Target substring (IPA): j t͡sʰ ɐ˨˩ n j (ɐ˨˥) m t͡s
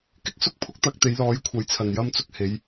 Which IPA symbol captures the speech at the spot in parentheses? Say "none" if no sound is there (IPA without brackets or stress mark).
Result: ɐ˥